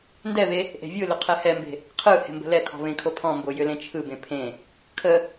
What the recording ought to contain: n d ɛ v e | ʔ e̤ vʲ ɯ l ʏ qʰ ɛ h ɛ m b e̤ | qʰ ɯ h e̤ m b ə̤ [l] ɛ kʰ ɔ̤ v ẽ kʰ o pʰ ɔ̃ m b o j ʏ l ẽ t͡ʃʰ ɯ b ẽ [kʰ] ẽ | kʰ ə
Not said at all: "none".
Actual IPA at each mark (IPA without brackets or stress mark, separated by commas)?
l, pʰ